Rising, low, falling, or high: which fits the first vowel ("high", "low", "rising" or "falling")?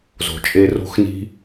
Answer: low